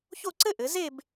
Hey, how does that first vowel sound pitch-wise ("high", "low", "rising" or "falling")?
falling